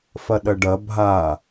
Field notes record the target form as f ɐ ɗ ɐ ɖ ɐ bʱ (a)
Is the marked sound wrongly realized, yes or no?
no